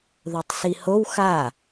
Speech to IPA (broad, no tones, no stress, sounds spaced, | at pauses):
ð o tˤ s i h o w x a